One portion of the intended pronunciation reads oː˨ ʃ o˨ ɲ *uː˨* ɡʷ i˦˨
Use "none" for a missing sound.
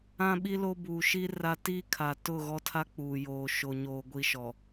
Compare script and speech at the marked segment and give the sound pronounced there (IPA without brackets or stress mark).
oː˨